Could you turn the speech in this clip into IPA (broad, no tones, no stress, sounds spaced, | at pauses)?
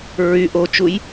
ɹ y ʔ o t͡ʃ u j